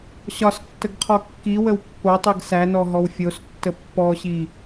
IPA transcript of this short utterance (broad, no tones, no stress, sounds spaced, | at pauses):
ɕ ɒ s tː ə ɡ qʰ ɔ kː i w ə w pː o tˤ i ɡ s æ n ɔ ɦ ɔ w fʲ o s tː ə pː ɔ ɕ i